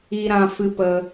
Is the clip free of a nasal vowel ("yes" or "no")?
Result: no